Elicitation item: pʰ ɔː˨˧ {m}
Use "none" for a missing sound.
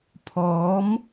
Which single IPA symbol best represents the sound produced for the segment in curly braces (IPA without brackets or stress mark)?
m